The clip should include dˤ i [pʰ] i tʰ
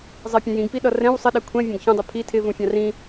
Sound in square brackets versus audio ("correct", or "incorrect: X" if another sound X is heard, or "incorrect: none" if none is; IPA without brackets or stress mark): correct